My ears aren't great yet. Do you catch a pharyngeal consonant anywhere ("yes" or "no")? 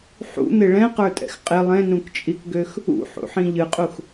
yes